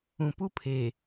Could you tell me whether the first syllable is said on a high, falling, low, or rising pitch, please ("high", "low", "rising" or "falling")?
low